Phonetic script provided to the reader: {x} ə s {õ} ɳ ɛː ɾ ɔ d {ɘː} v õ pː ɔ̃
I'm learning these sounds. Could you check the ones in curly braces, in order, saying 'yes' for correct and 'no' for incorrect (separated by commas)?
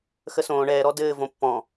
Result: yes, no, yes